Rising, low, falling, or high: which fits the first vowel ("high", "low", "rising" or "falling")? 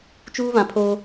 high